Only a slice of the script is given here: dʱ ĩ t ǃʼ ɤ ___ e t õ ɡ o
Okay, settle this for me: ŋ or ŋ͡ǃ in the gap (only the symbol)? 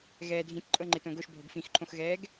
ŋ͡ǃ